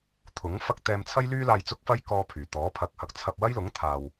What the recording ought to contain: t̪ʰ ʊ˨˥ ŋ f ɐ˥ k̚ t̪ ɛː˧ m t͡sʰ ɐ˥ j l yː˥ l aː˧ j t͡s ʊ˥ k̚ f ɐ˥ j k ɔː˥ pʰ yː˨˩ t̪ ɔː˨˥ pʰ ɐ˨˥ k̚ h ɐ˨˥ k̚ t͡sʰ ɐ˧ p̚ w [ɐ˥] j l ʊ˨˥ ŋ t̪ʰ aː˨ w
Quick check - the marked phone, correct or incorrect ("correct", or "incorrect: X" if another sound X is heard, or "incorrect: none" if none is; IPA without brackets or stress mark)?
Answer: correct